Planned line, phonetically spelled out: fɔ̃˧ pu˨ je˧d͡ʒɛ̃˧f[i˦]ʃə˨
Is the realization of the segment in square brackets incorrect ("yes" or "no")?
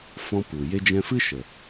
yes